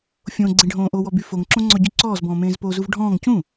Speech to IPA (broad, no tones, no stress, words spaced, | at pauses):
fʲõ ɡ͡ǀẽɖʱõːʔowɔ byfoŋǁõ ŋ͡ǀɔɟyǀɔːzbɔ̃ː mẽːzpozuv ɖʱɔ̃ːŋ cũ